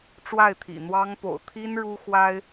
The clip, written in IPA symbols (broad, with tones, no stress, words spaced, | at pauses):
ʈ͡ʂwa˥˩ɪ̯t̪ʰḭ˨˩n̪wɑ˥ŋ po̰˨˩ʊ̯t̪ʰi˥n ɻu˥xwa˥ɪ̯